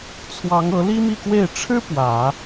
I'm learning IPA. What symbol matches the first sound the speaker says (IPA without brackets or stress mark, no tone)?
t͡sʰ